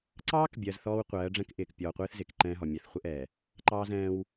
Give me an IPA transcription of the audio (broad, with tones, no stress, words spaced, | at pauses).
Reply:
ǀɑː˦kbʲɜ˨z θɔː˦wqʷɜː˨˦ɖ͡ʐɛ̃˦kʔɪː˨k pʲɔː˨qʷɪː˦θ zɪː˨kǃɛ̃ː˦ɦɔ˨ mʲɛ˨θχʷɪ˦ ʔɛ˨ | ǃɑː˦zɛ̃ː˦w